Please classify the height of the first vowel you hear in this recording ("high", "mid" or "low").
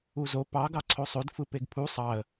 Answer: high